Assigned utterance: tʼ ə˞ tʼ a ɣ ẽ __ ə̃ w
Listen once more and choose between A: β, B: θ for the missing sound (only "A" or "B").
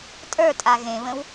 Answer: A